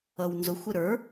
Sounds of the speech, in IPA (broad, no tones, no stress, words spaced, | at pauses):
ʌwnzʊxʷɪ ɾə˞